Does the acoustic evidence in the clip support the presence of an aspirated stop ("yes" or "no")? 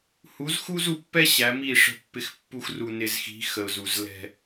no